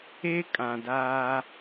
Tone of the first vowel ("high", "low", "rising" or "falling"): high